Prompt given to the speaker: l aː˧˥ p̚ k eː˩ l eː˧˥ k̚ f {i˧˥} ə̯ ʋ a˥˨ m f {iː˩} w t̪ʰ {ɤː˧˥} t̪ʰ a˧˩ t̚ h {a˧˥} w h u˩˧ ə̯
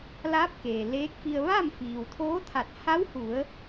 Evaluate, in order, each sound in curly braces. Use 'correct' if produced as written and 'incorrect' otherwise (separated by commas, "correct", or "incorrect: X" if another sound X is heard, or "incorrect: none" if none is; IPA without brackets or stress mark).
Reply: incorrect: i˧, correct, incorrect: oː˧˥, correct